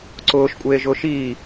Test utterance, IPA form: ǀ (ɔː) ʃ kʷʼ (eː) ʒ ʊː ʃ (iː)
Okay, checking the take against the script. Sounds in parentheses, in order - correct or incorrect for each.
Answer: incorrect: ʊː, correct, correct

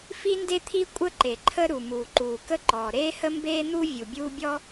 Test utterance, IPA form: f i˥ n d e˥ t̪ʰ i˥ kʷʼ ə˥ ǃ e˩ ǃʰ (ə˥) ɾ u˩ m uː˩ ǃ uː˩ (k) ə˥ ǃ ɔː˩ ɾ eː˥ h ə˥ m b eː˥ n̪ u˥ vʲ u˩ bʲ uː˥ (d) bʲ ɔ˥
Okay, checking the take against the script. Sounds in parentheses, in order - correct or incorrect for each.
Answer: correct, correct, incorrect: none

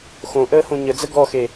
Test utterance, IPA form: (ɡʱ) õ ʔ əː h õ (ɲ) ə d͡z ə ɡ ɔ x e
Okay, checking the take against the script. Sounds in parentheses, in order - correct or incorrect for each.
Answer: incorrect: x, correct

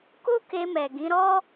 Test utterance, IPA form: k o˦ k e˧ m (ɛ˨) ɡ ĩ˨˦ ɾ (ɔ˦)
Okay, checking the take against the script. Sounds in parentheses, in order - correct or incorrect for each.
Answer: correct, correct

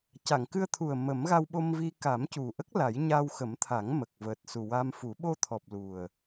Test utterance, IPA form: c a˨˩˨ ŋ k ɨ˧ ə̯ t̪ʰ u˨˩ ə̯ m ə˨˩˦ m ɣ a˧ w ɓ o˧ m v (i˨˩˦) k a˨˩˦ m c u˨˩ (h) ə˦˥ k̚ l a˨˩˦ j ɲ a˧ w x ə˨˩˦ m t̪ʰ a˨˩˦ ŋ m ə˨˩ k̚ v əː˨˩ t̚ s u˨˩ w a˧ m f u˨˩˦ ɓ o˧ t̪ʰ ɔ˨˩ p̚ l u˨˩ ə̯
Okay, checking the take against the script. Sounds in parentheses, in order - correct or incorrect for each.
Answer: incorrect: i˧, incorrect: ʔ

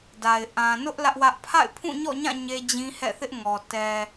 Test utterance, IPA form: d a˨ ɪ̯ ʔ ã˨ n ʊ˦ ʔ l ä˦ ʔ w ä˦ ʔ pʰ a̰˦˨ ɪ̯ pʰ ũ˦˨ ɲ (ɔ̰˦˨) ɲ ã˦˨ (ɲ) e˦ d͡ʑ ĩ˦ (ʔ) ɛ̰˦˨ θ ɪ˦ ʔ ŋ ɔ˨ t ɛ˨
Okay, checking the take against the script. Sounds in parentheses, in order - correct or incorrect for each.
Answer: correct, correct, incorrect: h

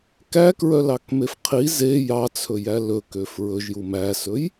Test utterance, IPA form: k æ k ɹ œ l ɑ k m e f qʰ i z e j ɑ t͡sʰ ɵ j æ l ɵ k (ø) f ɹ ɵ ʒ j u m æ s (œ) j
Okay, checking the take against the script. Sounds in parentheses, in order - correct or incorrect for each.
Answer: correct, incorrect: ɵ

